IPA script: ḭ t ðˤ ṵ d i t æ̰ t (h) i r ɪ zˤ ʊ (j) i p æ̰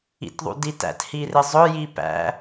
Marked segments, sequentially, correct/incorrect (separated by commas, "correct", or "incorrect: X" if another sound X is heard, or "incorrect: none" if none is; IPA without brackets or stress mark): correct, correct